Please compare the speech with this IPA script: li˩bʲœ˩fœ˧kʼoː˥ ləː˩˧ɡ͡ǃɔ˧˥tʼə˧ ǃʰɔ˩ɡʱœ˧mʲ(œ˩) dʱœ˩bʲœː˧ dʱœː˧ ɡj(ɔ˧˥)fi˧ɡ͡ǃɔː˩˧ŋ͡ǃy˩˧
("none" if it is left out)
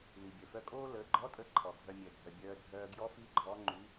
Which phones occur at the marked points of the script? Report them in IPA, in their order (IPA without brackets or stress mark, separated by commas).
œ˩, ɔ˧˥